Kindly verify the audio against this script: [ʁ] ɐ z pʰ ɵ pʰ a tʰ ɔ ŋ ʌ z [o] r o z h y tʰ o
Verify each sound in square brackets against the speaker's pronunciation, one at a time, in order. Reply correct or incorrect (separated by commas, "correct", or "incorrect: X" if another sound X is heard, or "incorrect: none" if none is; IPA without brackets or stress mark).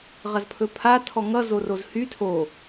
correct, correct